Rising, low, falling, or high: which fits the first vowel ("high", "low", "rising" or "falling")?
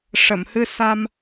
low